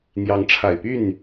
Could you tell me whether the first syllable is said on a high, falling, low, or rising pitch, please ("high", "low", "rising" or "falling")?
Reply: rising